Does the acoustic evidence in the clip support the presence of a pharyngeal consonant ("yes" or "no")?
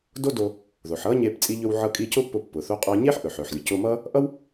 yes